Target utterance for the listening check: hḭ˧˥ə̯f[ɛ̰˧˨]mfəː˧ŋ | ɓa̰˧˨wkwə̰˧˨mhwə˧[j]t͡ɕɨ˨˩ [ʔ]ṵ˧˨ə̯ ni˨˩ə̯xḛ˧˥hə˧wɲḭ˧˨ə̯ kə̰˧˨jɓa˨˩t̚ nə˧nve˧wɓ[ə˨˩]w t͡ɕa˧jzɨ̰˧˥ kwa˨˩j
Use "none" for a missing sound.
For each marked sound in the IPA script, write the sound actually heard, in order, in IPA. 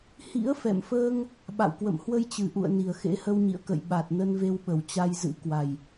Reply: ɛ̰˧˨, j, ʔ, ə˨˩

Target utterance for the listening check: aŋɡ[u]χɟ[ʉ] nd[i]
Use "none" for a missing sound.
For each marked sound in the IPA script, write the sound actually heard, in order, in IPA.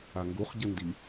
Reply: u, ɘ, i

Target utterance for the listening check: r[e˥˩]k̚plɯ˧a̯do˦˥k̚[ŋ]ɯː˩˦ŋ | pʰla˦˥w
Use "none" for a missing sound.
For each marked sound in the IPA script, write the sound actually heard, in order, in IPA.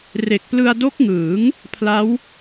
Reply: e˨˩, ŋ

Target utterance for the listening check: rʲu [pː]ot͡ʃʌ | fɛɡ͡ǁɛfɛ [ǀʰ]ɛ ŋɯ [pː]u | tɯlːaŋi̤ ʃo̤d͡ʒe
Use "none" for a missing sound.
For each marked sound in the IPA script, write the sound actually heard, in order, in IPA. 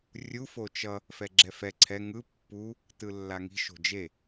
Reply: f, ǀʰ, pː

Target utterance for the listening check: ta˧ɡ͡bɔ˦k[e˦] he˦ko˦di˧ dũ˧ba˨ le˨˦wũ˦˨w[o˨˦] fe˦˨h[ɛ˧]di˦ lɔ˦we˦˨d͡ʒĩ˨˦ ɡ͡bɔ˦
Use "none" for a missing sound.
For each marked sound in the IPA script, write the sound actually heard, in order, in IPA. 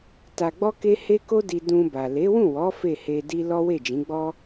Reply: e˦, ɔ˨˦, e˧

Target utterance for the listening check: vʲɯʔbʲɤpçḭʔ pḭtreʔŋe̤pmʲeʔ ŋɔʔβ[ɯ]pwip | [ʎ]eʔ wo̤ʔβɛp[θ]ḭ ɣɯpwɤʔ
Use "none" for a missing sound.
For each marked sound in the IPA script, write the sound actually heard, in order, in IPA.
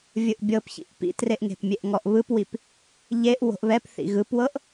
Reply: ɯ, ʎ, θ

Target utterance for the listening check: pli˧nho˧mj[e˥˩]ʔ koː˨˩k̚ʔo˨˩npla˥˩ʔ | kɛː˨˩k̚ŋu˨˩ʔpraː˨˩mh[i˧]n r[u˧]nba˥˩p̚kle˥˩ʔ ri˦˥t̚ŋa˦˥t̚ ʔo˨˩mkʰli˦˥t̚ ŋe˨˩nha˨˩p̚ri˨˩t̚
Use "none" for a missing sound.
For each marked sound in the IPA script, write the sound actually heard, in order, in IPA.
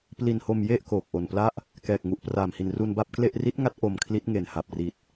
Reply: e˥˩, i˨˩, u˧

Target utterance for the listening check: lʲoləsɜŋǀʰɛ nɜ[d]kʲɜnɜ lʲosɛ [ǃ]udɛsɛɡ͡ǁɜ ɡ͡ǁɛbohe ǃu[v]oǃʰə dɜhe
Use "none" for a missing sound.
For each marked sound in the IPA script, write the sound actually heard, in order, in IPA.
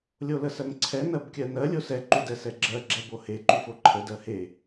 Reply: b, ǃ, f

